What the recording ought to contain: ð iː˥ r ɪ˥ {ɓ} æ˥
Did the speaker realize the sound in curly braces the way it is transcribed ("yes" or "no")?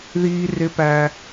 no